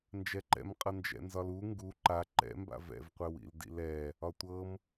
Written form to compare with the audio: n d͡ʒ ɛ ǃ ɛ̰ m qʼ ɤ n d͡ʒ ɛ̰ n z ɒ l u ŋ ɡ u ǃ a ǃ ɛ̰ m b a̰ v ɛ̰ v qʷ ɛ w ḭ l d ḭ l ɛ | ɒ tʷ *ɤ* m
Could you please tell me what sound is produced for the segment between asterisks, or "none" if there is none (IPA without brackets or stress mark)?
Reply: ɤ